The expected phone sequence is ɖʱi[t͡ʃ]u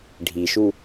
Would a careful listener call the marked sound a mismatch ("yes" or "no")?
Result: yes